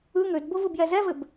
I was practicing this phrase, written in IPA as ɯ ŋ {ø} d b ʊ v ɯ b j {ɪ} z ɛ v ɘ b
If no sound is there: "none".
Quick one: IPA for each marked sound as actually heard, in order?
ø, ɛ

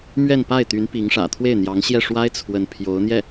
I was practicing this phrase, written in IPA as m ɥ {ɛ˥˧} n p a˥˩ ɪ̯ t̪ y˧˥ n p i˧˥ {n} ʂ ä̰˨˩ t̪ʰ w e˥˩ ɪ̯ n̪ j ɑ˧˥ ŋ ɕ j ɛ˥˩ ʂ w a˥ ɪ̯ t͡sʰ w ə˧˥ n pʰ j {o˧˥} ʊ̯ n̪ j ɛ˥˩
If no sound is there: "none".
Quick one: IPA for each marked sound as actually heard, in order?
ɛ˥˧, ŋ, o˧˥

